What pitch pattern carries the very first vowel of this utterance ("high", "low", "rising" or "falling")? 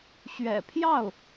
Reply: low